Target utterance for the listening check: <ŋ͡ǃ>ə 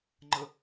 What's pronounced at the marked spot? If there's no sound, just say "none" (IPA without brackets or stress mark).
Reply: ŋ͡ǃ